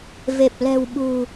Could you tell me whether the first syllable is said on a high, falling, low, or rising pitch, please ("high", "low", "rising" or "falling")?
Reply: low